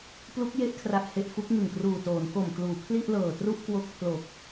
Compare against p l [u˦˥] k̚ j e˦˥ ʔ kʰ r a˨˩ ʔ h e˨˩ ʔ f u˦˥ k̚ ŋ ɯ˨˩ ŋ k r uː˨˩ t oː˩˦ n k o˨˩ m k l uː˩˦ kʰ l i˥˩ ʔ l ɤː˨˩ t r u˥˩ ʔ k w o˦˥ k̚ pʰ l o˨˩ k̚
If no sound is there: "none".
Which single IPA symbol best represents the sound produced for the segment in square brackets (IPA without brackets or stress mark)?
u˦˥